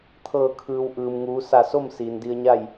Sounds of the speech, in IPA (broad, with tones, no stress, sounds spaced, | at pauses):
t̪ʰ ɤː˧˩ kʰ ɯː˩ w ʔ ɯː˩ m ŋ uː˩˧ s a˧˩ s o˥˨ m s iː˩ n d i˧ ə̯ ɲ a˥˨ j